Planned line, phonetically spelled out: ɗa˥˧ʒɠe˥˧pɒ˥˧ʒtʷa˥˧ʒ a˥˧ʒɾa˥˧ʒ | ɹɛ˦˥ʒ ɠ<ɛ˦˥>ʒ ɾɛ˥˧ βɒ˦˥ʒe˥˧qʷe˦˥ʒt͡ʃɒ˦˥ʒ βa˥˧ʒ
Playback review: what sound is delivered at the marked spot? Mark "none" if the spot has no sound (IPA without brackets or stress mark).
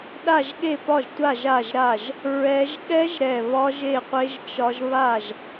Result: ɛ˦˥